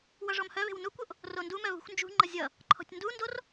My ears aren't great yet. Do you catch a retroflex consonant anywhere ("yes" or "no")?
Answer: yes